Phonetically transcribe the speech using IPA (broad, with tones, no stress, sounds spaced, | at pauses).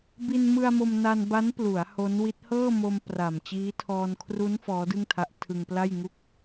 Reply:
b i˧ n m ɯ˧ a̯ m o˧ m n a˧ n b a˦˥ n p l u˩˦ a̯ h o˦˥ n w i˦˥ t̚ h ɤː˥˩ m o˧ m p r a˨˩ m t͡ɕ iː˦˥ tʰ ɔː˧ n kʰ r u˦˥ n f ɔː˦˥ d ɯ˥˩ ŋ tʰ a˦˥ ʔ tʰ ɯ˧ ŋ p l a˥˩ j ŋ u˥˩ k̚